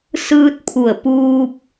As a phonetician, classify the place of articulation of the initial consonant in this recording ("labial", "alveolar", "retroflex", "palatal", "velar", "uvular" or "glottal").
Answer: alveolar